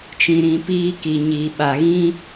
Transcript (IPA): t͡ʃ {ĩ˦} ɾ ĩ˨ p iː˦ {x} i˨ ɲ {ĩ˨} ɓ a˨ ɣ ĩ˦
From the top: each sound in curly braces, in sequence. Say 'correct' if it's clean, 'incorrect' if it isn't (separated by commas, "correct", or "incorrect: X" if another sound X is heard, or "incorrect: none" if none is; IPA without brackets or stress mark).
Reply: incorrect: ĩ˨, incorrect: k, incorrect: i˨